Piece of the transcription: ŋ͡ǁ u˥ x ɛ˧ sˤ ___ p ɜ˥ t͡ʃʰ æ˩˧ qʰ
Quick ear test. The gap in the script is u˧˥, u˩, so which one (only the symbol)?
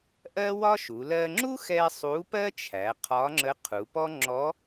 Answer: u˧˥